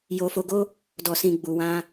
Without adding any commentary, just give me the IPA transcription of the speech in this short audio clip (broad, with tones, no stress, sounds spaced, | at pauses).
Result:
j o˧ f o˧ ɡ o˦ | d ɔ˧ s ĩ˧ ɡ͡b u˨ w ã˧